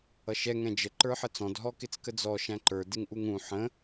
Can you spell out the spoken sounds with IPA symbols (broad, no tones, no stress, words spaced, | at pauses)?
ʌʃɛ ŋɛ̃d͡ʒə ǃə˞ħət͡sɔ̃d ɦɔkɪt͡skəd͡zɔ ʃæ̃ǃə˞ dɪŋʔuŋũ ħə̃